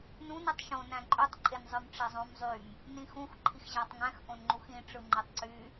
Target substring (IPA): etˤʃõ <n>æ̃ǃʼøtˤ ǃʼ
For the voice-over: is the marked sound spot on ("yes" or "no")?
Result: yes